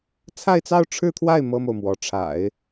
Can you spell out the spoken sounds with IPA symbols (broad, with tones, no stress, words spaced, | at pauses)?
t͡sʰa˥˧ɪ̯t͡sɑ˥˧ʊ̯ ʈ͡ʂʰɻ̩˥˧t̪ʰwa˥˩ɪ̯ mɤ˥mo˨ʊ̯mwɔ˧˥ ʈ͡ʂʰa̰˨˩˦ɪ̯